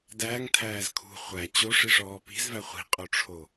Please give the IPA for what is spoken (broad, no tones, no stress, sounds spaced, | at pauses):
d æː ŋ tʰ æː z kʰ ṳ χʷ æ t͡ɕ o ʂ i ʂ ɔː p i̤ z v æ χʷ i̤ qʼ o ʈ͡ʂʰ o